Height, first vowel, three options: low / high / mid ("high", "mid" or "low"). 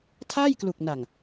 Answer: low